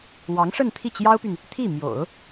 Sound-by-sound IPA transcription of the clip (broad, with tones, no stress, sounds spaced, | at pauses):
w ɑ˧˥ ŋ ʂ ə˥˧ n t̪ʰ i˥˩ t͡ɕ j ɑ˥ ʊ̯ p y˨ n | t̪ʰ i˥˩ m j o̰˨˩˦ ʊ̯